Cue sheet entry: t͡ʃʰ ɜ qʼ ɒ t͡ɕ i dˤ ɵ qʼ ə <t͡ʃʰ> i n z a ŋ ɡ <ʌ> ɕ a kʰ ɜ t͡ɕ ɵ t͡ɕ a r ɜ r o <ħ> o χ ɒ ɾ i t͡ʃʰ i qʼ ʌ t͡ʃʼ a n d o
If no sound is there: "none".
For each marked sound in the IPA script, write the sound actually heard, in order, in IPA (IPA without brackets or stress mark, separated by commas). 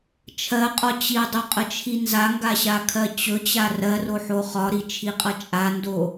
t͡ʃʰ, a, ħ